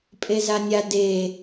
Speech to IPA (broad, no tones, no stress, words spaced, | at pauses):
pʼezanʲa de